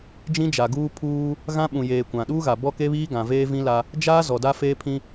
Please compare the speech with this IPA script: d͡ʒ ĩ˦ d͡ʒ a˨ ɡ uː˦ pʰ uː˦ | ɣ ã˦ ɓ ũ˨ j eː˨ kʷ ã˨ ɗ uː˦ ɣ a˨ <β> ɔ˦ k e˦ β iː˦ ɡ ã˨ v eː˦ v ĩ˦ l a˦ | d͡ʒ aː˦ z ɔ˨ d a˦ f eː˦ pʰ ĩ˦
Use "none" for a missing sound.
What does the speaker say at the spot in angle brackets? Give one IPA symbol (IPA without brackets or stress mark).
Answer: b